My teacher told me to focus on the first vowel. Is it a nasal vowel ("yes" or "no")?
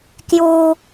no